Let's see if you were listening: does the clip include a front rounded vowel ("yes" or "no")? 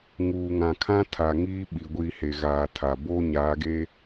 no